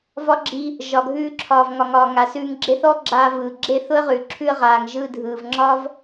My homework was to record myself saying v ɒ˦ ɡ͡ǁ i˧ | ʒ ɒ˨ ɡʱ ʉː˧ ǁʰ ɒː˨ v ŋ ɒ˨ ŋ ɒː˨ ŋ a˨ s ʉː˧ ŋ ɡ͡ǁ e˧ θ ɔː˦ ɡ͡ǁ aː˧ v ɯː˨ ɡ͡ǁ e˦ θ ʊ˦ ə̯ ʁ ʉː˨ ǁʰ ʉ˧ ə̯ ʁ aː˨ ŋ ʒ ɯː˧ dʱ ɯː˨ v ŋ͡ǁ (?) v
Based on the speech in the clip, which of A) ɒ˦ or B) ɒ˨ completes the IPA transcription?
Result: A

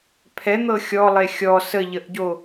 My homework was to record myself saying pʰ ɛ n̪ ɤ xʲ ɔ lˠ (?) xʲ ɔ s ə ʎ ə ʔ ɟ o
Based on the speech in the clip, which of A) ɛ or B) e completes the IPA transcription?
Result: B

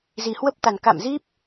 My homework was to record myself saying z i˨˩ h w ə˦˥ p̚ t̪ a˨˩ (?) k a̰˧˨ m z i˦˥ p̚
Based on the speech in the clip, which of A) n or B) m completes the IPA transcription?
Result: A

